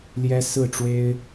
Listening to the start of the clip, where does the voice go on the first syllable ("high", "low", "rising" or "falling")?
high